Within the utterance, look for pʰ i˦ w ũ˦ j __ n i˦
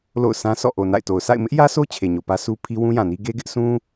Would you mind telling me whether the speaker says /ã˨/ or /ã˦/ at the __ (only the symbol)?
ã˨